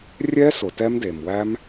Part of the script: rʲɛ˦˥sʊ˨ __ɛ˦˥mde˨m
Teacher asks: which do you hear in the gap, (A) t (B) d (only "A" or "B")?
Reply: A